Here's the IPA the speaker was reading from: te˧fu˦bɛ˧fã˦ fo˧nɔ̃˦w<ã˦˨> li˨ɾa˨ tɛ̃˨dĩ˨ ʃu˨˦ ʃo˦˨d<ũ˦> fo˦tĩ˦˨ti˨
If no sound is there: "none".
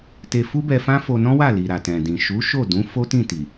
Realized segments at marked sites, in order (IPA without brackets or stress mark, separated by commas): a˦˨, ũ˨˦